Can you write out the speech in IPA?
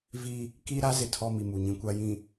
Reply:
vi˦ | ki˦ ɾa˦zɪ˨ tʰɔ˦ mi˨mu˨ ɲĩ˨ kʷa˨jĩ˨

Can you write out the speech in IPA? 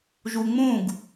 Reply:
ʒuŋ͡mũɡ

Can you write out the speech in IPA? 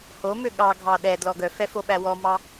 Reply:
homø ɠɑɡʱɑ ɗɛdlɔ ɡœfɛ foɓæwɔmɑ

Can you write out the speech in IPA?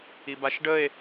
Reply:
ibaʃɖəe̯

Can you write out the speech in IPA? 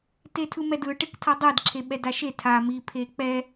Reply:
tetʰɯmɛdɯ ʈektʰadˤɛd ǁʰeɓɛdaʃe tʰa mi pʰek͡pɛ

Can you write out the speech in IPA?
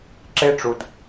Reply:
ǁe˦ʈ͡ʂu˨d

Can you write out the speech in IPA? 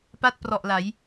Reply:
pa˥˩t̚prɔ˨˩ʔla˩˦j

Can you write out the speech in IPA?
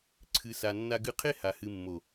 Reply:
ǀʰɨ˨sa˨ nːa˧ɡɨ˧qʰe˦ha˨ hɨ˨mːo˨

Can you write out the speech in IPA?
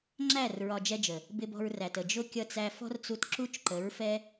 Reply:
ŋ͡ǁæ˦˨r ɹɒ˧d͡ʒɛ˦d͡ʒə˨ | bɪ˧bɔ̤˧ɹræ˨tə˨ d͡ʒʊ˦kʲʌ˧t͡sæ˧ fɔ̤˦rt͡su˧t ǁu˦t͡ʃǃə˨˦ɹ fɛ˦

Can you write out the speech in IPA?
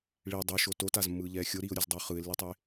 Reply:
ɭi dˤɛʃo totazmːɯːʎɛː xʲoɾiːʊ̯ɾʲozdˤʌʊ̯ χɯɪ̯lːitˤe

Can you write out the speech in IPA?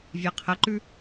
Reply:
vʲaqʰɐǃʉ

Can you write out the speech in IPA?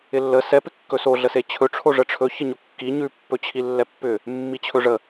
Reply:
ɪlːə sɛ pɪkːɵso ɮəset͡ɕʰɵ ʈ͡ʂʰoʐəʈ͡ʂʰɵ çəɲokːi ɲʉ pːɵt͡ɕʰilːɛpːʏ | mːit͡ɕʰɵʐə

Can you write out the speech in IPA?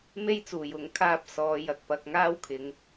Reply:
me˥jt͡suː˨˩jʊ˨˥ŋ kʰaː˥p̚ sɔː˨˧jɐ˨k̚pɐ˧k̚ ŋaː˥wkʰɪ˨˧ŋ

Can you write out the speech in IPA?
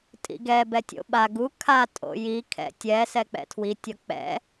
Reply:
tʼḭɡɛ bɛtʲo̰ɓa ɡu kʰa tʼo̰ji kʰɛ̰tʲɛ sɛk͡pɛ̰tʰwi tʲʌk͡pɛ̰

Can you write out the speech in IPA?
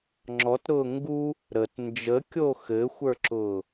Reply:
ŋ͡ǁɔtɾʊː ŋɡu | ɾət nd͡ʒəkʲo xɘxʷə˞ǁʊː

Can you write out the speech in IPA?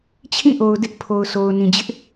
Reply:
t͡ɕʰĩ˦˨ʔo˨ʊ̯dɪ˦ʔ pʰo˨ʊ̯so˨ʊ̯ nĩ˨d͡ʑɪ˦ʔ

